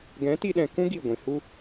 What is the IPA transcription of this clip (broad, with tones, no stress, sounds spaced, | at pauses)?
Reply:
ɡ ɛ̃˨˦ t i˧ ɗ ɛ̃˨ k ũ˦ ɡ i˦˨ ɡʷ ĩ˨ h u˦